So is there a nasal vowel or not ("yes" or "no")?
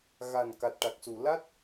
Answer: no